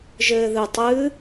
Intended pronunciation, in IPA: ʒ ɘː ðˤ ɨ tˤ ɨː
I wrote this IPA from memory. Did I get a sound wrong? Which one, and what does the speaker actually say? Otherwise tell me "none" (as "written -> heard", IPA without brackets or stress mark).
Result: ðˤ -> ð